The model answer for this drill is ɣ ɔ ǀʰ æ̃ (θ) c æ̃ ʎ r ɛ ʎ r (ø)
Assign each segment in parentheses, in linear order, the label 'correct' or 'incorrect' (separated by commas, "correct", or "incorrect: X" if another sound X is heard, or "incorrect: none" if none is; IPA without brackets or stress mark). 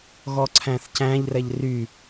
correct, incorrect: y